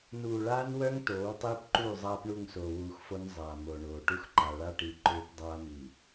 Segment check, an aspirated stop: absent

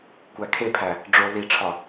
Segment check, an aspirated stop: present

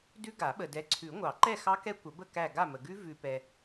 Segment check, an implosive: present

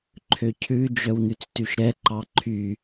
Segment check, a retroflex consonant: absent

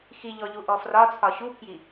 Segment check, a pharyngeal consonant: absent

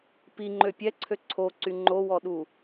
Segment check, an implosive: present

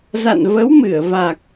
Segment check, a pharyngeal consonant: absent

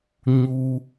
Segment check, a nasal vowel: absent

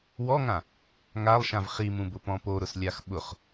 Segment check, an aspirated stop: absent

